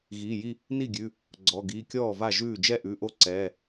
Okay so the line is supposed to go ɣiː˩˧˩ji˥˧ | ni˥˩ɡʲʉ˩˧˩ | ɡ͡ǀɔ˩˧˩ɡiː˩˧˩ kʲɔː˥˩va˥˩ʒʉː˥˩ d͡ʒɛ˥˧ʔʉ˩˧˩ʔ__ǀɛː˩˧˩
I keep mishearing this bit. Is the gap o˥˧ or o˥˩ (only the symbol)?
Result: o˥˩